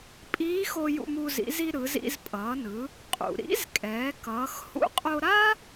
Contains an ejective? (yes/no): yes